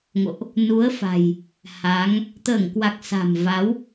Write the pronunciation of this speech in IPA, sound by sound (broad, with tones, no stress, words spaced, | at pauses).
ŋo̰˧˨ʔ | nu˨˦ə̯fa̤˨˩j | ha˨˦ŋ | t̪əː˧˩ŋkwa˨˩k̚ sa̤˨˩m va˨˦w